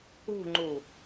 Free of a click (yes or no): no